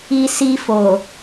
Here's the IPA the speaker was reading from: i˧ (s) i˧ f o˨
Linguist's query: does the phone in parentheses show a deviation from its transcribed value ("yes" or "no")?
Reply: no